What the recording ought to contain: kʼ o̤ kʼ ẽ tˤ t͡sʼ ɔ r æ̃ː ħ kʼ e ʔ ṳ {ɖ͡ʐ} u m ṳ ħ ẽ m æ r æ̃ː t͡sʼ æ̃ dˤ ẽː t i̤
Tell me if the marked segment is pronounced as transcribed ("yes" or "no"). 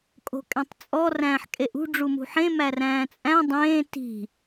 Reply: yes